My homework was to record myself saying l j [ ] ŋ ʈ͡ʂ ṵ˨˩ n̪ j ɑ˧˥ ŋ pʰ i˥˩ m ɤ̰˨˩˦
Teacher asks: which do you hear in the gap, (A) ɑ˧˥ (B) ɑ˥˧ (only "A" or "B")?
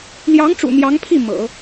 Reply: A